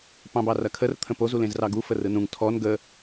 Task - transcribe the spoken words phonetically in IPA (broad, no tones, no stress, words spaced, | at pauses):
pɑ̃bɑrɐkʰər t̪ʰə̃poz ulẽzrɑɡu fərɯnũŋ tʰɔn ɡə